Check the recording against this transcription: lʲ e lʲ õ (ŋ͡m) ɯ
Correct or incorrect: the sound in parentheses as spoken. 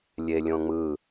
correct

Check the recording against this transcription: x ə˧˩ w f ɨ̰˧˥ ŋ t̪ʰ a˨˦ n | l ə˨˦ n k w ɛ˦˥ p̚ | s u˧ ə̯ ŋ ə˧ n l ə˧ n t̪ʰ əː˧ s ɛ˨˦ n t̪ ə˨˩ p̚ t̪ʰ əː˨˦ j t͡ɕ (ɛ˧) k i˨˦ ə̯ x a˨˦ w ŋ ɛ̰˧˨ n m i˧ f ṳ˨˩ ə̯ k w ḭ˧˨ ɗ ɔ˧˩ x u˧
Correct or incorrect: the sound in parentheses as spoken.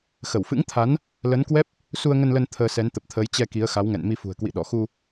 correct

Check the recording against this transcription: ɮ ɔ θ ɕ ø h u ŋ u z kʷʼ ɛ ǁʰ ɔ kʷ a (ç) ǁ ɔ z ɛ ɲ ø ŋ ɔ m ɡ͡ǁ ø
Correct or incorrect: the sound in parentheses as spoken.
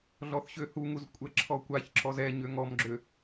correct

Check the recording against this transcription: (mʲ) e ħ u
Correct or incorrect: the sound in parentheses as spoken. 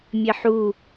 correct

